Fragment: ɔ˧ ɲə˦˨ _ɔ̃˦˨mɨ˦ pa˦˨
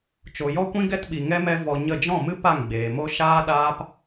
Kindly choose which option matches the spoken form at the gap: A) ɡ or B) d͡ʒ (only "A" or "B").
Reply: B